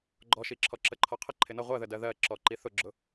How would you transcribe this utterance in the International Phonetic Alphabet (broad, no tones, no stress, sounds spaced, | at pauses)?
ɡ͡ǃ ɔ ʃ i ǁʰ ɔ ǁ ə ǃʰ ɒ qʰ ə ǃʰ ɪ n ʌ ʁʷ ɜ ð ə d ɜ ð ɜ ǁ ɔ ǃ i θ ʊ ɡ͡ǁ ʊ